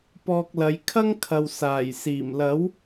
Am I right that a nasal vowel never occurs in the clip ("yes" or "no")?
yes